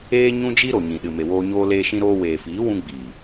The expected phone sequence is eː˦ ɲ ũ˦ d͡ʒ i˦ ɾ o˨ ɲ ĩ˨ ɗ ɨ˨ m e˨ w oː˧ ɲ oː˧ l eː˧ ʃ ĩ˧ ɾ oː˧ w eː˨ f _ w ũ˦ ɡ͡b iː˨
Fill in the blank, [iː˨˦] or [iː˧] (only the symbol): iː˨˦